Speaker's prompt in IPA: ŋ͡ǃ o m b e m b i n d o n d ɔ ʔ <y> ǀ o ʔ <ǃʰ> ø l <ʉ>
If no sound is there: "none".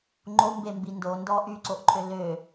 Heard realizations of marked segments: y, ǃʰ, ø

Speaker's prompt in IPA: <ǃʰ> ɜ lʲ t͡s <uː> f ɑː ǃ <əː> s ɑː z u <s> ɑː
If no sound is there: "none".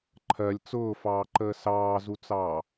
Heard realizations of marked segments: ǃʰ, ʊː, əː, t͡s

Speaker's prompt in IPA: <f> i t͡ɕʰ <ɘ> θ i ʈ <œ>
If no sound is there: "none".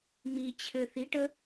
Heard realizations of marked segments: m, ɘ, ə

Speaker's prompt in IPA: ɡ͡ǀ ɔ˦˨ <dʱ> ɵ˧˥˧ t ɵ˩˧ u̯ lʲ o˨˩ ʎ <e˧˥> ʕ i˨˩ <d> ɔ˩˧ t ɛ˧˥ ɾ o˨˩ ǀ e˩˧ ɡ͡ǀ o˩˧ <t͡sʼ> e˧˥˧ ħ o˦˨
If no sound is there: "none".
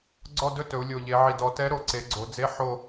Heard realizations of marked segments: d, e˩˧, d, d͡z

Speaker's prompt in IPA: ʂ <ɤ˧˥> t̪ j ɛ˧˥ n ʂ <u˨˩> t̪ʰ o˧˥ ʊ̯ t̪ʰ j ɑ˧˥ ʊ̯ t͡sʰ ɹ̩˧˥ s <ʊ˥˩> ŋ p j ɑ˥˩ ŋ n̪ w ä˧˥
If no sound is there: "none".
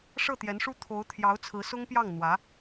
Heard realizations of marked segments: ɤ˥˩, u˥, ʊ˥

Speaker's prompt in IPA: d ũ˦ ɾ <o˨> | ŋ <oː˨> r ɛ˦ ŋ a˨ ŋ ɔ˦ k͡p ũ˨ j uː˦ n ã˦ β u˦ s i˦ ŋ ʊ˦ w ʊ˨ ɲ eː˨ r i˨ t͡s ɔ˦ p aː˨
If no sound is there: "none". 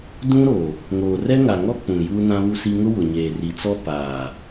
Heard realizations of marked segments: o˨, oː˨

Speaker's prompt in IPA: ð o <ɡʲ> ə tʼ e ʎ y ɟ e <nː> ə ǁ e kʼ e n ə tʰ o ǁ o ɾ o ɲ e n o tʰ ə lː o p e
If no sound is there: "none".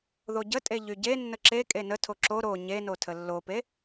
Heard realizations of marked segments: ɟ, nː

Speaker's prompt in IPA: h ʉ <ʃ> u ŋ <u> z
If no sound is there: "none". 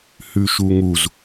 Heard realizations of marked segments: ʃ, u

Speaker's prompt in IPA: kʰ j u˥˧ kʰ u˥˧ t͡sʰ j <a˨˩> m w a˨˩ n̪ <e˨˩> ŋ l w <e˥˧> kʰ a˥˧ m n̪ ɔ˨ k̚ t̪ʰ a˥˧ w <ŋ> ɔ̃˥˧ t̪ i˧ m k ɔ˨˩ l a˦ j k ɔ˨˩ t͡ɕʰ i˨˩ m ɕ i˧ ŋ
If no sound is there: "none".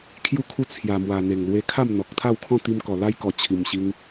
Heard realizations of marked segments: a˨˩, e˨˩, e˧, kʰ

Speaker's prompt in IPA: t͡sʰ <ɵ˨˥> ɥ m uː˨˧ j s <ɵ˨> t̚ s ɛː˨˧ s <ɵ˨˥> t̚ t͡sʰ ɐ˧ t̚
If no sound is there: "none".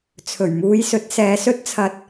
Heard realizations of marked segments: ɵ˨˩, ɵ˨˥, ɵ˥

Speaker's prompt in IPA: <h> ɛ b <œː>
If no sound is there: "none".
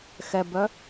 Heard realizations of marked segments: x, œ

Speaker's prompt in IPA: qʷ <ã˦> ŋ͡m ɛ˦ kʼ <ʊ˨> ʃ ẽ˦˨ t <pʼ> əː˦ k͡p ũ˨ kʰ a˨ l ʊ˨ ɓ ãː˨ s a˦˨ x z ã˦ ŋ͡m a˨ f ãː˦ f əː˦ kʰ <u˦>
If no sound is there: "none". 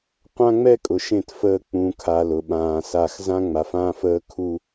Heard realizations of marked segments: ã˦, ʊ˨, f, u˦

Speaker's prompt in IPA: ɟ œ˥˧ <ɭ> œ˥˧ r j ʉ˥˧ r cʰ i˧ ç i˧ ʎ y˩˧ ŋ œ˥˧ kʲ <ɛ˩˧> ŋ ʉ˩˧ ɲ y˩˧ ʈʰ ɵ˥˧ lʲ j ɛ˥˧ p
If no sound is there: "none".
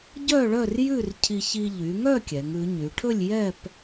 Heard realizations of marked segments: ɭ, ɛ˩˧

